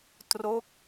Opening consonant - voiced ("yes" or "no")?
no